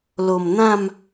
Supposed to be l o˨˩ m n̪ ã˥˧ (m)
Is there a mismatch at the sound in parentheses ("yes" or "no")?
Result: no